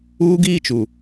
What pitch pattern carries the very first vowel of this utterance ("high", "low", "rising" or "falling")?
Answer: high